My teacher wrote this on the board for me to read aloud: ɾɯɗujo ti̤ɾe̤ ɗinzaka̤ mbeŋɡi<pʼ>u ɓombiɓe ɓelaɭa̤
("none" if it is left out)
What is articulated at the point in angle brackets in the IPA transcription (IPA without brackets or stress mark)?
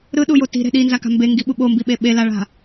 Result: ɓ